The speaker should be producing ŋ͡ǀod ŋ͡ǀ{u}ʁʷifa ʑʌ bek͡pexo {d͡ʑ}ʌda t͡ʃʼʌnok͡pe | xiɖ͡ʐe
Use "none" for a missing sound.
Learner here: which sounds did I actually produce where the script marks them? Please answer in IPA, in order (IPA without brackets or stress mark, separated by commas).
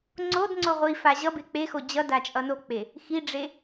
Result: o, d͡ʑ